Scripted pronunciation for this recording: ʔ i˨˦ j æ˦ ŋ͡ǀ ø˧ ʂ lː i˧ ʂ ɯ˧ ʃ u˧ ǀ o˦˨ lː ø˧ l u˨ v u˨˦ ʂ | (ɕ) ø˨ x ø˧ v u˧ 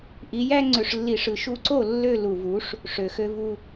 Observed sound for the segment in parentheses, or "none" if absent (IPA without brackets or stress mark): ʂ